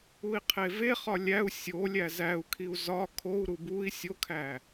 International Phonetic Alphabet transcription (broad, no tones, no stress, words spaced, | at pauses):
ui̯qʰeveχɒ lʲæu̯ sʲolʲæ zæu̯kʰiu̯ zɒ kʰou̯ɾu bui̯ sʲokʰæ